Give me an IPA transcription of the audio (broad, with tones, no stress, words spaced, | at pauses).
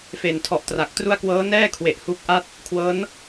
feː˨˩ntʰɔ˨˩ʔtra˨˩k̚tru˥˩a̯ kwɤː˦˥nɛː˥˩kʰwe˨˩ʔ hu˦˥k̚ʔa˥˩t̚ | kʰwɤː˦˥n